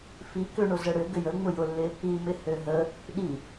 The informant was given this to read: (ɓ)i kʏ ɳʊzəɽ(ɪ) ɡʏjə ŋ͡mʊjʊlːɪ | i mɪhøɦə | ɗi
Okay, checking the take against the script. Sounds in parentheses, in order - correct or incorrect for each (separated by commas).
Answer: incorrect, incorrect